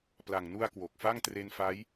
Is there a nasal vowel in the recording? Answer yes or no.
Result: no